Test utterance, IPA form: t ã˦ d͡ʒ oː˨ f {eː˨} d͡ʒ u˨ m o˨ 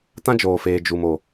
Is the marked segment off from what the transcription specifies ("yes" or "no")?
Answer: no